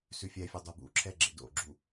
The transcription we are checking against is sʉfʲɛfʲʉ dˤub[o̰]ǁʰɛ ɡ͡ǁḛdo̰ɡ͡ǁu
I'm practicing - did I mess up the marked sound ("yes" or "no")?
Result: yes